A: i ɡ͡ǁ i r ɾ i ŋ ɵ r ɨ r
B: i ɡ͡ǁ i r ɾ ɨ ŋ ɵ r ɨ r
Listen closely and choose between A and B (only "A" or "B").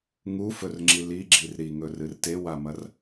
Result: A